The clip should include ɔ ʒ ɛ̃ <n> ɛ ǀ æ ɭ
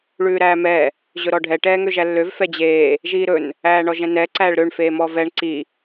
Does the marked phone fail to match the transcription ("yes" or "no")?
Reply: no